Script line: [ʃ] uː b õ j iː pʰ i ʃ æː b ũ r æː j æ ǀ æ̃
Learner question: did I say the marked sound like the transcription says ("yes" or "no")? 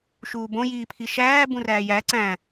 yes